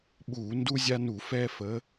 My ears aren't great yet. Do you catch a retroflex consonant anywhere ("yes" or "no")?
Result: no